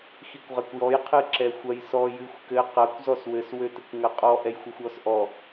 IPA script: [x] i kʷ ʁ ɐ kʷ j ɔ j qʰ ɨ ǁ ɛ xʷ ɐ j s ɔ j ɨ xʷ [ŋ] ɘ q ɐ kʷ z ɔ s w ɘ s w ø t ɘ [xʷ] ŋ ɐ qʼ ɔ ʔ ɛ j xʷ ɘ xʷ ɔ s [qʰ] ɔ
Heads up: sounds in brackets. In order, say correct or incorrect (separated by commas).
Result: correct, incorrect, incorrect, incorrect